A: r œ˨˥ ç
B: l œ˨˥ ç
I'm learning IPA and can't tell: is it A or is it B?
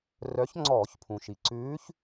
A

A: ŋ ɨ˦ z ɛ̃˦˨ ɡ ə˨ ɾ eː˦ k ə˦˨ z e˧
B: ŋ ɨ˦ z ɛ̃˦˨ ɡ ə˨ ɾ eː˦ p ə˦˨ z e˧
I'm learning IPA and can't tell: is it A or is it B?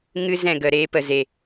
B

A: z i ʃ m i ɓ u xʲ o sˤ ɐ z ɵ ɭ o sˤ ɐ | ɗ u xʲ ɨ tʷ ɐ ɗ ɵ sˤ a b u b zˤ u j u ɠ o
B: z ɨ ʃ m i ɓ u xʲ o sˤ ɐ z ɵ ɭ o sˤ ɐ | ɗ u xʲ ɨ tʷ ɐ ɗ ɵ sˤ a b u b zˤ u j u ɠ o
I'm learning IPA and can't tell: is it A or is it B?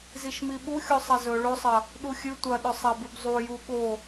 A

